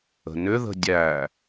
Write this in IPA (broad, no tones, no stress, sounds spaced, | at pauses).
ə̤ n ʏ ð ə̤ dʲ æ